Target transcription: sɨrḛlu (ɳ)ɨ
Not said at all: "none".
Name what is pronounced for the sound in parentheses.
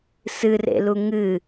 ŋ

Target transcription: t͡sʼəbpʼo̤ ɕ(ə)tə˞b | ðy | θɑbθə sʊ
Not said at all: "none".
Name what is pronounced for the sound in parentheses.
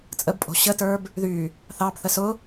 ə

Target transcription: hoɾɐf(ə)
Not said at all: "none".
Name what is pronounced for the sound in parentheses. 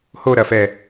ɛ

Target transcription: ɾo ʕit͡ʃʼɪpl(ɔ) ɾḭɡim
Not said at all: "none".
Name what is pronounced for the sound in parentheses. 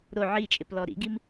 ɔ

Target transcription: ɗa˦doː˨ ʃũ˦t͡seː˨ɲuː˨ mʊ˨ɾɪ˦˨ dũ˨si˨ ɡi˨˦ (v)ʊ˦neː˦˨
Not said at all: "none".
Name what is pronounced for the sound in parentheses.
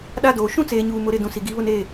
β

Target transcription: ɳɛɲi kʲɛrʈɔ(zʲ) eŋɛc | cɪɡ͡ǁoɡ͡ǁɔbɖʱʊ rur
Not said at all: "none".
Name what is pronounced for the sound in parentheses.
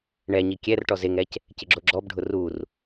z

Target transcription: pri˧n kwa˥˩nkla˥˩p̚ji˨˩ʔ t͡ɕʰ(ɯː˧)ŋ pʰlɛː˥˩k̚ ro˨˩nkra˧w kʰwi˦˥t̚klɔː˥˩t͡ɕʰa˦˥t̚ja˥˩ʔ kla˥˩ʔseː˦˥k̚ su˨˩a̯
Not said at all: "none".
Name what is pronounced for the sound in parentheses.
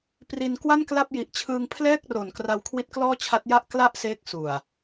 ɯː˧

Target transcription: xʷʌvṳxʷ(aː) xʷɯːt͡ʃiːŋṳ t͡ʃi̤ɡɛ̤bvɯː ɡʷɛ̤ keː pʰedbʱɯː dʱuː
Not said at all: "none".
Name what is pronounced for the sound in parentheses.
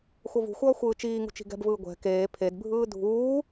ʌː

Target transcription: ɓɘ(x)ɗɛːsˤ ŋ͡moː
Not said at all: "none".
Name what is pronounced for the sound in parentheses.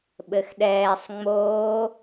x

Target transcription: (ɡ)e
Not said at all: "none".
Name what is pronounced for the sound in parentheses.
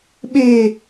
ɓ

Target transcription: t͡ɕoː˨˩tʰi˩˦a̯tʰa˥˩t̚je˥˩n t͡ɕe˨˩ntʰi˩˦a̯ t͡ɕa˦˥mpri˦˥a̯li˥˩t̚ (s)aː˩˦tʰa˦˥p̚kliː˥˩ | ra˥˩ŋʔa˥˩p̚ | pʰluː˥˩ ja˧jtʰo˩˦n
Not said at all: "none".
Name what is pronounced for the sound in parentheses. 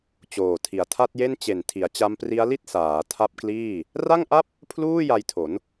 s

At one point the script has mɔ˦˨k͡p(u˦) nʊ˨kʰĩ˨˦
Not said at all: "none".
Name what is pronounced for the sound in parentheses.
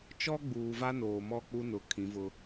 u˦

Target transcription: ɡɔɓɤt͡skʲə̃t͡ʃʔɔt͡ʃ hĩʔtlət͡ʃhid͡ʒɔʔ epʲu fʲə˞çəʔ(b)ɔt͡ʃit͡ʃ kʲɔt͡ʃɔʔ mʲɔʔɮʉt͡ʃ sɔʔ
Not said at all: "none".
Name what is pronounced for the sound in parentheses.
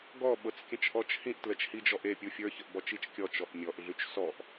b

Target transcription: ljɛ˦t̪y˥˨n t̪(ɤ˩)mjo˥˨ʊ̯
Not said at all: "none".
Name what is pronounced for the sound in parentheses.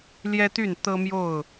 ɤ˦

